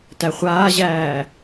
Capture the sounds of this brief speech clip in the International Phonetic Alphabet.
t æ χʷ aː ʑ æː

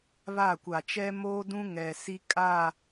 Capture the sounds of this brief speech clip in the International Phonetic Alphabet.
β a˦˨ kʷ a˨ t͡ʃ ɛ˦ m oː˦ d ũ˦ ŋ ɛ˨ s i˦ kʼ a˦˨

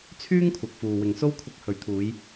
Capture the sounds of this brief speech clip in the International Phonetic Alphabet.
t͡sʰ yː˥ ŋ kʷʰ ɐ˨ k̚ f uː˨ w ɪ˨ ŋ s o˥ w kʷʰ ɐ˧ k̚ h ɵ˨ ɥ t̪ʰ uː˨˧ j

